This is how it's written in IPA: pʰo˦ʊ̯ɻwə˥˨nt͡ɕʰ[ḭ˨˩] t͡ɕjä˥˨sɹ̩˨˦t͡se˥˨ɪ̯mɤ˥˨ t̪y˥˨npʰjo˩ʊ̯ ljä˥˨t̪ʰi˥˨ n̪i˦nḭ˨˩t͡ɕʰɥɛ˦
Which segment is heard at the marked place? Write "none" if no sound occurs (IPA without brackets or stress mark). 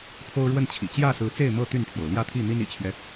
ḭ˨˩